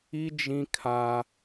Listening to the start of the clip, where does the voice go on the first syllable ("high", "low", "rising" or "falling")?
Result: high